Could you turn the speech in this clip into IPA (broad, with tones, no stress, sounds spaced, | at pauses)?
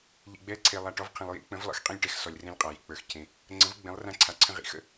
ʎ ḭ˨ ɡ͡b ɛː˦ ǀʰ eː˨ lˠ a˨ ʈ ɔ˨˥ v qʰ ɛ̃˨ lˠ j ḭ˨˥ k͡p ə̃˨˥ v lˠ ə̰˨˥ x qʼ ẽ˦ lʲ ʈ ɛ˨ x s ɔ˨ lʲ r ẽ˦ lʲ qʼ a˨ j ḭ˨ k͡p ə˞˨ x cʰ ẽ˨ | ŋ͡ǀ ə̃˨˥ v ɡ͡b ẽ˨˥ lˠ r ã˦ ǀʰ a˨˥ ǀʰ ə̃˦ ʁ ḭ˨˥ x ə̰˦